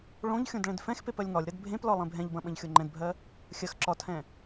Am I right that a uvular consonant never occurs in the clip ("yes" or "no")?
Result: yes